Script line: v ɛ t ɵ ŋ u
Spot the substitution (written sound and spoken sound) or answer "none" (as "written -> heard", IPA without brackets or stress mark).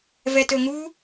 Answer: none